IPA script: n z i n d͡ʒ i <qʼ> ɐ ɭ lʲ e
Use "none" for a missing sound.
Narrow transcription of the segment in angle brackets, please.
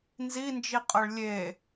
qʼ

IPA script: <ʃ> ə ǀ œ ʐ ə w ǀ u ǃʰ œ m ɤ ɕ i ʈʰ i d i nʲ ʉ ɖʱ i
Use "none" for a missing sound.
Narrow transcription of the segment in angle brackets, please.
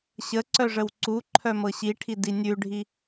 ɕ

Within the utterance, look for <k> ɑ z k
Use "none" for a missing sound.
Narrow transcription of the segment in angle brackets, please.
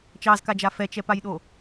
t͡ʃ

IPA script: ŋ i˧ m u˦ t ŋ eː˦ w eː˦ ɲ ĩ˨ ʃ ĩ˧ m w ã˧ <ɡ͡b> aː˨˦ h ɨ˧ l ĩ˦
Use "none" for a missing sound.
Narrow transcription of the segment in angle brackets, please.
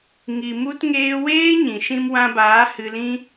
b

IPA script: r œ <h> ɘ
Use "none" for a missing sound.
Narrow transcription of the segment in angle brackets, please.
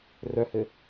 h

